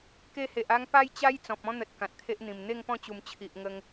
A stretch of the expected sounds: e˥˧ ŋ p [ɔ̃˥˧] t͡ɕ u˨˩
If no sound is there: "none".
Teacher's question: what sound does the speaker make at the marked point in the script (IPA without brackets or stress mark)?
ɔ̃˥˧